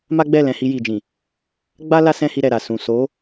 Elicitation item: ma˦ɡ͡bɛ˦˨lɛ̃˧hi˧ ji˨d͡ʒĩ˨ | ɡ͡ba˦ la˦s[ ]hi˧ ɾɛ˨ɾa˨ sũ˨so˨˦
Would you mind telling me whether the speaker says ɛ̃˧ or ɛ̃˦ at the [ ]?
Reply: ɛ̃˦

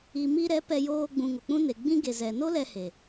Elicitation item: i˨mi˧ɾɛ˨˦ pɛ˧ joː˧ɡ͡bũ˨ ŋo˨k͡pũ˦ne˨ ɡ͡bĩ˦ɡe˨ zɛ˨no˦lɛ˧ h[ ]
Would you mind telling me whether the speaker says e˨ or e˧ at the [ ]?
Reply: e˨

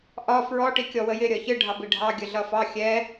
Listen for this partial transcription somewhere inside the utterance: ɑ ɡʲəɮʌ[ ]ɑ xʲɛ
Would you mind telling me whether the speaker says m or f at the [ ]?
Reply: f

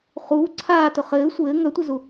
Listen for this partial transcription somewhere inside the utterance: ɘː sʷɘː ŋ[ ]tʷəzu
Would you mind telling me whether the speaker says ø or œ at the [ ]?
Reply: œ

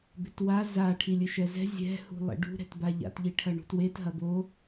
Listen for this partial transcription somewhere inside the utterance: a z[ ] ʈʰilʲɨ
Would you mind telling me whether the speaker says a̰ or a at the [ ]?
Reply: a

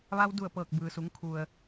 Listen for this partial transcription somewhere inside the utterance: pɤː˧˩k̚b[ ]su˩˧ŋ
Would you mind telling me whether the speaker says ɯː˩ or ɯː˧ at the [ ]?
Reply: ɯː˩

